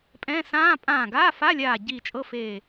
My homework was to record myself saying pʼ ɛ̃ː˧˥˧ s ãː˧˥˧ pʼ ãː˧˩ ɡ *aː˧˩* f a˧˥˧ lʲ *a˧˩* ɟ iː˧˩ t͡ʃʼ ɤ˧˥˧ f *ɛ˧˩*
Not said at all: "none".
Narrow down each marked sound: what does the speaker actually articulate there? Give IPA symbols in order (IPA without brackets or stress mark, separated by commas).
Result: aː˧˥˧, aː˧˩, e˧˩